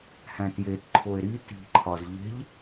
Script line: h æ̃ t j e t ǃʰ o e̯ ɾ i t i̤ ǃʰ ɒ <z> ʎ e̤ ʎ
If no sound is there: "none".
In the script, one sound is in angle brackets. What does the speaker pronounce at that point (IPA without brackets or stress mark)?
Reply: z